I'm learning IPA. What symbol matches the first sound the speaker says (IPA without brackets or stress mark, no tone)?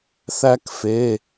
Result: θ